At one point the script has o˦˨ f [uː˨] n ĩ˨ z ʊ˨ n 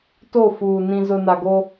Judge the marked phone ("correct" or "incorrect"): correct